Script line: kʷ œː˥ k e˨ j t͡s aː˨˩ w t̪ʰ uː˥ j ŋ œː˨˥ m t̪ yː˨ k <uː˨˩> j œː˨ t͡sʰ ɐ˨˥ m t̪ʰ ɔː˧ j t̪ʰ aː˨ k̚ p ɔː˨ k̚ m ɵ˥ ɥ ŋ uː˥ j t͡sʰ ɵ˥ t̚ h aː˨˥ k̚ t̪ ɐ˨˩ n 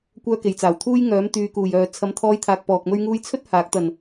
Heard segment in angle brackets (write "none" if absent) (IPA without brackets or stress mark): uː˨˩